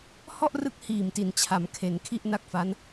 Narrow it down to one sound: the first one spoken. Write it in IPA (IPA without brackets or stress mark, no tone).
h